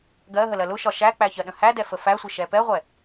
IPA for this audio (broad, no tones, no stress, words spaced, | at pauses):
ɡɜ ɦəlɜlʊʃɒ ʃæk͡pæ çɜɗə̃hædɛ fəfæsʷə ʃɛpɛʁʷɛ